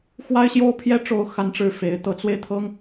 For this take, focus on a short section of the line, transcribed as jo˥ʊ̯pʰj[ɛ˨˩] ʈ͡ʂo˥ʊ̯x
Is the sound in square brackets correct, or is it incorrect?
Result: incorrect